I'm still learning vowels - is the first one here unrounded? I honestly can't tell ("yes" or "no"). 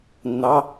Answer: yes